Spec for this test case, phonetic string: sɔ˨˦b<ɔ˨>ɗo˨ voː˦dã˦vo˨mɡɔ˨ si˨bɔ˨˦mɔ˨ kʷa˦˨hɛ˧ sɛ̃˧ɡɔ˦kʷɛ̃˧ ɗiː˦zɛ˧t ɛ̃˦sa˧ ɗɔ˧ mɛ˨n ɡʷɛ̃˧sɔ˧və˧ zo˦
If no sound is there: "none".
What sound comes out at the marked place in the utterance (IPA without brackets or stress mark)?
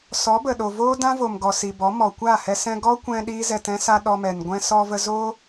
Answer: ə˨